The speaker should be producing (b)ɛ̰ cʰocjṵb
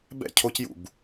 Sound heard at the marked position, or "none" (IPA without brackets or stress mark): b